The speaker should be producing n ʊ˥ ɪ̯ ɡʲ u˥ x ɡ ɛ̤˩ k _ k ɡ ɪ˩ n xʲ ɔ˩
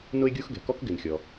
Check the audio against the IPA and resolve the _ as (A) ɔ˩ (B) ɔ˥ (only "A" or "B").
B